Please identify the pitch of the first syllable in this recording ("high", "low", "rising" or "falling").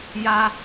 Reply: high